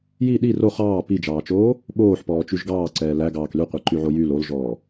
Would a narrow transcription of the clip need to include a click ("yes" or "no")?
yes